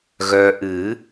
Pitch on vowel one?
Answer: low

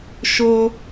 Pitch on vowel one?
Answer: high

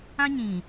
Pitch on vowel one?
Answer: high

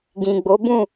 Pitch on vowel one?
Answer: low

